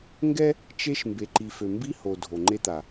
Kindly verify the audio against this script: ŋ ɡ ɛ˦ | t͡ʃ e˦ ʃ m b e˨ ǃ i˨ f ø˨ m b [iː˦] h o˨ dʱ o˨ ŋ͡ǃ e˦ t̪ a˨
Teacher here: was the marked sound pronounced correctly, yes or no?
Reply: no